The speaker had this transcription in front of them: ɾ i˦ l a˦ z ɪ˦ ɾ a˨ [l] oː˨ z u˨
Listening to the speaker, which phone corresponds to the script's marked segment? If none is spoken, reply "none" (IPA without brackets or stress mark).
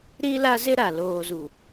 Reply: l